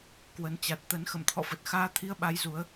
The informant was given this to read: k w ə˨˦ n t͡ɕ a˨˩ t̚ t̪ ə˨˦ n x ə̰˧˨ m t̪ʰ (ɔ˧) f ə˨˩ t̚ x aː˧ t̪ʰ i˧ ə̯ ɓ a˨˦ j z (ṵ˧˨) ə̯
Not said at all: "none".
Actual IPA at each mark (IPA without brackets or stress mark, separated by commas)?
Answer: ɔ̰˧˨, u˨˦